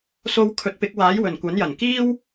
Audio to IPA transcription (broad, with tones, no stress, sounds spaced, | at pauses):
s o˧ w kʰ ɵ˨˥ t̚ p ɪ˨˥ k̚ w aː˨˥ j w ɵ˨˩ n kʷ ɐ˨˥ n j ɐ˨˩ n k iː˥ w